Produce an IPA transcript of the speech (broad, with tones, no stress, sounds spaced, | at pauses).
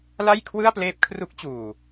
l a˥˩ j kʰ w ɯ˥˩ a̯ p l eː˦˥ p̚ kʰ r u˦˥ k̚ t͡ɕ uː˨˩